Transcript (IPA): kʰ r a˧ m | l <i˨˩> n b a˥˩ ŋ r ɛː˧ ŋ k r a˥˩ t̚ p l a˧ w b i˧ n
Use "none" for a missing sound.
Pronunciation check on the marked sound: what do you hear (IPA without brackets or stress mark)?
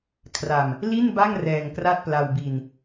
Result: i˥˩